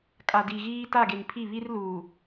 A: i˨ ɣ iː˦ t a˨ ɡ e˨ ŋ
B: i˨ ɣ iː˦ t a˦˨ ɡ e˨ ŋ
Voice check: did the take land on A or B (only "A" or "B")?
B